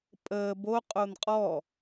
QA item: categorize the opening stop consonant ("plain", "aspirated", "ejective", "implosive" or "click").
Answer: ejective